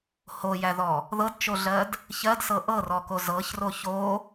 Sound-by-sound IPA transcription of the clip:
h o j æ ð ɔ | ð ɤ d t͡ʃ o ɮ ɜ d | ç ɜ d s ɤ ʔ ɤ r ɔ k o z ɤ ç r o ç o

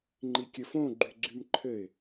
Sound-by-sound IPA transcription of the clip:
ŋ͡ǃ i kʲ ɘ f õ ɡ͡ǃ y ɡ͡ǀ y m ǃʰ ɘ ɪ̯

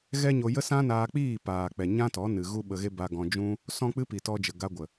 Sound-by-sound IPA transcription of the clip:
ɣ ɛ˦ ɲ o˧ j ə˦ s ã˦ n aː˧ k͡p iː˦˨ p aː˨ k͡p ɛ˨ ɲ ã˦ t ɔ˨˦ n ɨ˨ ɣ u˦ ɓ ə˧ ɣ e˦ b a˧ ɡ ɔ̃˧ d͡ʒ ũ˦ | s ɔ̃˦ k͡p ɨ˦ p i˨ t ɔ˧ d͡ʒ ə˨ ɡ a˧ ɡʷ ə˨

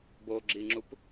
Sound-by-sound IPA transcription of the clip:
b o ɡ͡ǁ i ŋ͡ǁ u p

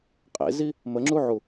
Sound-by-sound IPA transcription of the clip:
qʼ ḛ z i | m ə ŋ͡ǁ u ʕ u

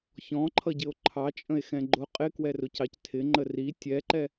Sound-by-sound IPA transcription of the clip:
ç ɔ̃ ǃʰ ʌ ɟ ɪ o̯ ǃʰ ɑ t͡ʃʼ ə̃ e̯ x ɛ̃ ɡ͡ǃ ʊ qʼ ɪ k w ɛ r ʊ c ɑ c tʰ ɪ ŋ͡ǃ ə r i tʲ ɛ ǃ ɛ

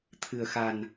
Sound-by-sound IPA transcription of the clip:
t̪ʰ ɨ̤˨˩ ə̯ x a̤˨˩ n

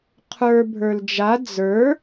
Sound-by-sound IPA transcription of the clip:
qʰ ə˞ bʱ ə˞ l d͡ʒ a d͡z ə˞

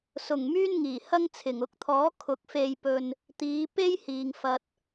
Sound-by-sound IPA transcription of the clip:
s ʊ˨˩ ŋ m yː˥ n ŋ iː˨˩ h ɐ˥ ŋ t͡sʰ ɪ˨˩ ŋ ʊ˨˥ k̚ t̪ʰ ɔː˨˥ kʰ ʊ˨˥ k̚ f e˧ j p ɵ˧ n | t̪ iː˨˧ p e˥ j h iː˨ ŋ f ɐ˨ t̚

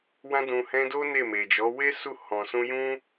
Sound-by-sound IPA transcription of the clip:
w ã˧ d ũ˨ h ɛ̃˧ d o˦ n e˦˨ m e˨ d͡ʒ ɔ˨˦ w e˦ s u˦˨ h ɔ̃˨ s ũ˧ j ũ˦

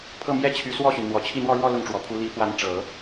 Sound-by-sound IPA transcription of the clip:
pʰ ɤ˥˩ m j ɛ˥ t͡ɕʰ y˧˥ s w ɔ˥˩ ɕ y˩ n n̪ w ɔ˨˩ t͡ɕʰ i˥˧ n̪ w ɔ˥˧ ɻ w ɔ˥˧ l ʊ˥˩ ŋ ʈ͡ʂ w ɔ˨˩ pʰ u˧˥ l i˧˥ f w a˧˥ n ʈ͡ʂ ɤ˨˩˦

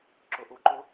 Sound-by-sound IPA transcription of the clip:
ǁ ʊ ʔ u ǃ ʊ

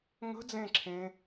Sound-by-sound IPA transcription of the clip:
ŋ ə̤ d͡z ẽ ǁʰ ẽ

